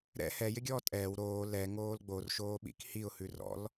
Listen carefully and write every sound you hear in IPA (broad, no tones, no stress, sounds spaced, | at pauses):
ɾ ɛ̰ h ɛ j ɪ ɡʲ ɔː tʼ ɛː w ɾ oː l ɛ ŋ oː l ɡ͡b o r ʃ oː ɓ ḭ k h i ʊ̯ h ʉ r ɔ̰ l